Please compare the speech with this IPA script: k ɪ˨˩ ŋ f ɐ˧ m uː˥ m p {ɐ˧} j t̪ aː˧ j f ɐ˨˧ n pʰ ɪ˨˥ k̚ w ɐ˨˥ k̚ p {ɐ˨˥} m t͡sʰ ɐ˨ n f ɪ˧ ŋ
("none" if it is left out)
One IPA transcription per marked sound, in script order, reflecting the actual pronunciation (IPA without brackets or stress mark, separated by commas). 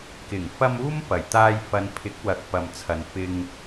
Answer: ɐ˨˩, ɐ˨